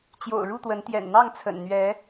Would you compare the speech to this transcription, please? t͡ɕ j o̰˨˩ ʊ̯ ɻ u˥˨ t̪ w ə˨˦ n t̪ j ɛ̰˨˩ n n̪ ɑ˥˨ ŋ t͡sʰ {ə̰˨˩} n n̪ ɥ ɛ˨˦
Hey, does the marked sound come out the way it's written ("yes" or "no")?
yes